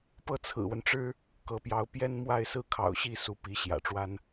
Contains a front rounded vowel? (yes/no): no